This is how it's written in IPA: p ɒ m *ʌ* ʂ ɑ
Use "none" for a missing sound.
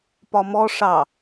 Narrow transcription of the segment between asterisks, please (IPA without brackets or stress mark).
ɔ